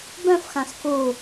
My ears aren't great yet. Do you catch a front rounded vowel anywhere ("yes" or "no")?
yes